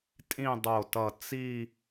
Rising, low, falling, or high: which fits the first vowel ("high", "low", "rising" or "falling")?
falling